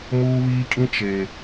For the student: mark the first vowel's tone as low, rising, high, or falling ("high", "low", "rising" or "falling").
high